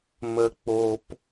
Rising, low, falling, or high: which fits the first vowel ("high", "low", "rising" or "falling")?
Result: low